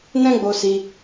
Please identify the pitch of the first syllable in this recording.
high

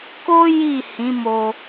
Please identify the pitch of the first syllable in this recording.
high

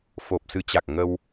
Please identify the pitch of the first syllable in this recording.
low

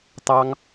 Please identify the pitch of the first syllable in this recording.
high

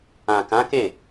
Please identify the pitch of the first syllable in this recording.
low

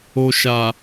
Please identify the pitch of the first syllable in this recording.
low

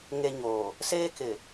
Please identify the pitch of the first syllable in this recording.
low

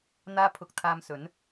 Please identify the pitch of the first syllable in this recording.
high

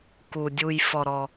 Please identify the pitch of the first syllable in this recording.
low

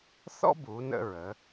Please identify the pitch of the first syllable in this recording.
high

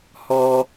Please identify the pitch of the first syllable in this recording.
high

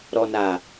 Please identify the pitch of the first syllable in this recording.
low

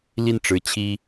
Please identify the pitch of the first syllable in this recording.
falling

